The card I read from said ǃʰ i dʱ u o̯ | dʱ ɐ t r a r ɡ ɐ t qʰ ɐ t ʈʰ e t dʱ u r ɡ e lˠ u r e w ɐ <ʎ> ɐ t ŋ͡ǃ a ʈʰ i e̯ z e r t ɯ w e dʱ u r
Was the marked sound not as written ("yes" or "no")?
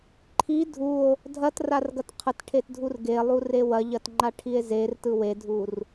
no